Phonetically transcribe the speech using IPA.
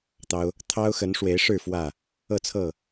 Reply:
t̪ ɑ˦ ʊ̯ | t̪ʰ ɑ˦ ʊ̯ x ə˨˦ n ʂ w e˨˦ ɪ̯ ʂ ɻ̩˥˨ f w ä˥˨ | ɤ˥˨ t͡sʰ ɤ˥˨

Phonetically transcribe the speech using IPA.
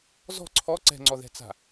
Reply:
z ɔ̤ ǀʰ ɔ ǀ ɛ̤ ŋ͡ǀ ɔ ð ɛ̤ t͡s a̤

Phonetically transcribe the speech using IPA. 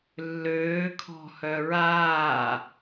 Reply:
lː øː kʰ ɔ̤ h œ ɹ aː

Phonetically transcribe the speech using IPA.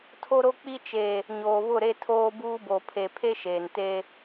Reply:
tʰ o˦ ɾ o˦ k͡p i˦ t͡ʃ e˨ | ɲ oː˨ β ʊ˦˨ ɾ e˦ tʰ oː˦ b uː˦ b o˨ pʰ e˨ pʰ e˦ ʃ eː˨ n t e˦

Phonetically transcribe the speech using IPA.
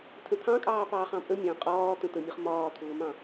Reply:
tʰ ə̃ t̪ʰ ɑ̃ kʼ ɑː p ɑː χ ɑ̃ pʼ ə mʲ ɑ̃ qʼ ɒː t̪ ə̃ t̪ ə mʲ ʌ χ m ɒː t̪ʰ ʊː m ɑ̃

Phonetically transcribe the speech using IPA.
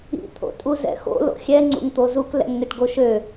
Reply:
ḭ t̪ʰ o̰ tʼ u z ɛ̰ x o̰ l o̰ xʲ ɛ ŋ͡ǀ ṵ ŋ t̪ o z u k l ɛ̰ ŋ n e ʈ ɡ o ʃ ø

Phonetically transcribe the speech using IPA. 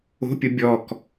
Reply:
o̤ pʲ ʊ bʲ ɔ k

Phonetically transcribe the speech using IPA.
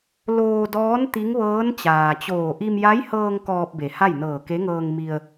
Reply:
l oː˧ d ɔː˧˥ n t̪ i˧˥ ŋ ʋ ɤː˧˥ n t͡ɕ aː˩ t͡ɕ oː˧˩ ʔ i˧ m j a˧˥ j h ɤː˧ ŋ k ɔː˧ p̚ b e˩˧ h a˥˨ j n ɤː˧˩ k e˧˥ ŋ ɤː˧ ŋ m i˧ ə̯

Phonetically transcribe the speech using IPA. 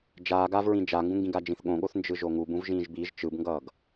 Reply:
d͡ʒ aː ɡ a v ɹ ĩ d͡ʒ a ŋ ɡ ũ ŋ ɡ ĩ ɡ a d͡ʒ ĩ θ ɠ õ ɠ o θ n d͡ʒ ɯ ʒ o ŋ u b ũ v ʒ ĩː ʒ b i ʒ t͡ʃ ɯ b ŋ ɡ ʌː ɡ

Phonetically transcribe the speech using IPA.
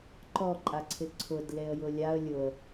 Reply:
ǃ ɔ ǃʼ a ǀʰ ɪ ǀʰ ʊ d l e ə̯ j ʊ lʲ a ə̯ lʲ ʊ ə̯

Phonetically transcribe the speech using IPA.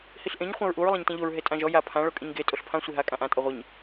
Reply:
h i ɬ ʔ ẽ ɲ χʷ ã ɹ ʔ u ɹ lˠ ã ɲ t ẽ ʎ o ɹ ɦ e tʼ ã ʒ ɔ j a pʰ ã ɭ o kʼ ĩ ɲ ɡ e tʼ o ɬ pʰ ã sʷ i ɦ a kʼ ã ʔ ã tʼ ɔ ʁʷ i ɲ

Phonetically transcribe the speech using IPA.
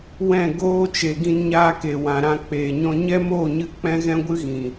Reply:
w ɛ̃˦˨ ɡ oː˦ t͡ʃ e˨ ɡ ĩ˧ n ɲ aː˧ k e˨ w ã˨ ɾ ã˧ k͡p eː˨ ɲ ɔ̃˧ ɲ ɛ˦ m oː˦˨ ɲ ɨ˧ k͡p ɛ̃˦ ɣ ɛ̃˦ ɡʷ ɨ˦ ɣ ĩ˨

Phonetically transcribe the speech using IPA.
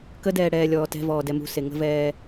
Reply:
k ə d ɛː ɽ ɛː lʲ ɔː t ɛ̤ v ɔː d ɛ m ṳ s e ŋ ə̤ v ɛː

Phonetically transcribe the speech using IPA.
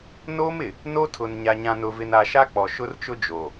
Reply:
n oː˦ m ɪ˨ | n o˦ tʰ ʊ˨ n ɲ a˨ ɲ ã˨ n ʊ˨ v ɪ˨ n a˨ ʃ a˦ k͡p ɔ˨ ʃ ʊ˦ r t͡ʃ ʊ˦ d͡ʒ o˨

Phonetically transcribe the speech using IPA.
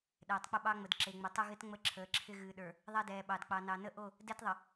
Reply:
ɗ ɛː˨ tˤ k͡p ə˦ ɓ ɑ˦ ŋ͡m ə˨ d ǁ e˨ ŋ͡m ɪ˨ tˤ ə˦ ɣ ɪ˦ t ŋ͡m ə˦ ǁʰ əː˨ ǁʰ ɪ˦ ɣ ɨː˨ ɗ ə˞˨ | ðˤ ɛ˦ d ɛː˨ ɓ ɑ˨ d k͡p ɑ˨ n ɑ˨ n ə˦ ʔ o˦˨ | d ɛ˦ t ðˤ ə˨

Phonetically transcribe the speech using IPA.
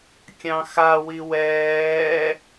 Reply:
kʲ ɑ̃ x a w i w ɛː

